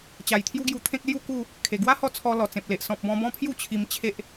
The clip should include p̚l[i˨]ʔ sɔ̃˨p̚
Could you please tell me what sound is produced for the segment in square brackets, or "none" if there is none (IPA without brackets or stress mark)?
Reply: e˨